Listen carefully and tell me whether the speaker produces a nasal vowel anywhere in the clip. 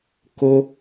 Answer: no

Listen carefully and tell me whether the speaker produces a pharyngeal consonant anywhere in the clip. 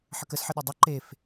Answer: yes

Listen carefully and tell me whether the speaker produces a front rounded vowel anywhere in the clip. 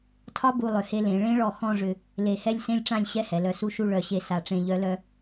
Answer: yes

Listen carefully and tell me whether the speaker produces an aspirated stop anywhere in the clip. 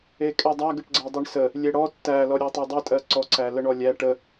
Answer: no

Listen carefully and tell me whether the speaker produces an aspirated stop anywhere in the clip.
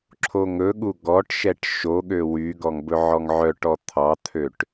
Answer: yes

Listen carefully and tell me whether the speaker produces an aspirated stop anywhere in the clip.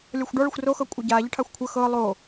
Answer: yes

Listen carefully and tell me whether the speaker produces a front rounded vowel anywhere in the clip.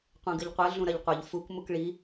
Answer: no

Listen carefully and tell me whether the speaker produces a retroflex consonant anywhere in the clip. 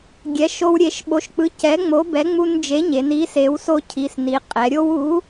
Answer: no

